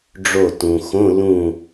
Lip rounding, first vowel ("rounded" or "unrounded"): rounded